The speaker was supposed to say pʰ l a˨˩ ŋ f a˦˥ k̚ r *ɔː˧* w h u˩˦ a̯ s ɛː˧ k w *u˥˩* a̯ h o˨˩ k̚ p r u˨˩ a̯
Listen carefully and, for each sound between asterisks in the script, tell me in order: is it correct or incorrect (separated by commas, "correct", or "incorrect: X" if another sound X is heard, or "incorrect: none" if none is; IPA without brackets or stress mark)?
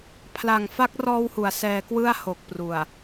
correct, incorrect: ɯ˥˩